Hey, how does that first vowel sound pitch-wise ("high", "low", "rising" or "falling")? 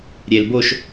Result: low